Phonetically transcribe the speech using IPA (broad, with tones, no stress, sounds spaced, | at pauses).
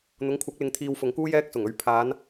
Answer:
n̪ ʊ˨˥ ŋ kʷʰ ɐ˨˥ k̚ l ɪ˨˧ ŋ t̪ʰ iː˧ w f ʊ˨˧ ŋ k uː˥ j ɛː˧ k̚ s ʊ˨˩ ŋ ɵ˨˧ ɥ pʰ aː˨˧ n